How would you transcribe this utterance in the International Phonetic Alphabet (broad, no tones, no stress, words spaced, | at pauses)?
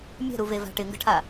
mʲɛ̤ɾuveva̤ ʈɪŋɡə̤ʈʰa